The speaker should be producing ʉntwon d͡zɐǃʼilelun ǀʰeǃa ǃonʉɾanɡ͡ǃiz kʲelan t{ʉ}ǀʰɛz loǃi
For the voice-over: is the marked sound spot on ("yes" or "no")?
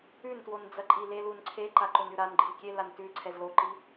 yes